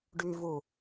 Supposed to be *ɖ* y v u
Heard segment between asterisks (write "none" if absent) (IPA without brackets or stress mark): ɖ